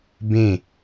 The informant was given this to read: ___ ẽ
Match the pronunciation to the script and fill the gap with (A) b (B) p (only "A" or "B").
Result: A